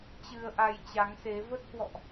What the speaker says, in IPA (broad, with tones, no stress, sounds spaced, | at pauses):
t͡ɕ ɨ˧ ə̯ ʔ a˧ j t͡ɕ a˨˦ ŋ s e˨˦ v ə˦˥ t̚ h w ɔ̰˧˨ ʔ